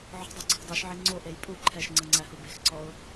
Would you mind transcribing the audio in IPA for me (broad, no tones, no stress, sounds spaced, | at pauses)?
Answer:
ʕ ɔ̤ dˤ u ǀʰ e̤ dˤ u ʃ ʕ i ŋ͡ǀ o ʔ e j pʼ u ǃʰ ɛ ʃ ŋ͡ǀ ɯ ŋ͡ǀ æ h u b e̤ x ǀ ɔ ʊ̯